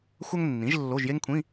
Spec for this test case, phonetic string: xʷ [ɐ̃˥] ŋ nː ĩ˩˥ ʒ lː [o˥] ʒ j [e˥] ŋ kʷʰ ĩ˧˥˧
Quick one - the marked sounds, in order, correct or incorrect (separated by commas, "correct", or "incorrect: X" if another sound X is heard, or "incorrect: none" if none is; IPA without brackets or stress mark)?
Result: incorrect: ɐ˥, incorrect: o˧˥˧, correct